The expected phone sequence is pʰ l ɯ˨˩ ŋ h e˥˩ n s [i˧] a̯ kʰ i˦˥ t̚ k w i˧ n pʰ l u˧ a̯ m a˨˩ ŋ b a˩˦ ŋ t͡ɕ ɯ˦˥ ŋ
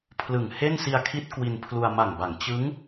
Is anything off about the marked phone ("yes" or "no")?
no